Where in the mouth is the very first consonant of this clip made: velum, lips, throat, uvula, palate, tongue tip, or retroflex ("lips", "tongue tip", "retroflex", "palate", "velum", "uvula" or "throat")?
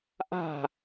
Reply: throat